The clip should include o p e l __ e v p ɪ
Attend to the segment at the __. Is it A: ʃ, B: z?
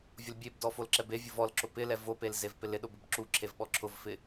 B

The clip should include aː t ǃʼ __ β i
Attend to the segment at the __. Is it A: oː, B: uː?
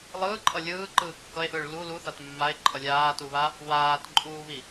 B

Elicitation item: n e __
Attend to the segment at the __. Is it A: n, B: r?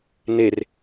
B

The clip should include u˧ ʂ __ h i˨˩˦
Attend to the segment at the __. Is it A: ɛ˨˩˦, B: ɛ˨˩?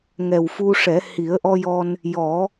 A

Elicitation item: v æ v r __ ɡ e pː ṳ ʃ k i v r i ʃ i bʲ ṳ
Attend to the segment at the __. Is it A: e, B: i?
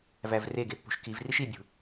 A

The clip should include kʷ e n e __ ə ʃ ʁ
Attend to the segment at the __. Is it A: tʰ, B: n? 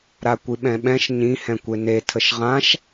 A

